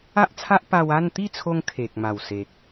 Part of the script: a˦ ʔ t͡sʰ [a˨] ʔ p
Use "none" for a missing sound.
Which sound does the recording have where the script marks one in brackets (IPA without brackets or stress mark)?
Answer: a˦